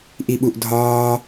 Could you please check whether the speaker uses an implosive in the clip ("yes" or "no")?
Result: yes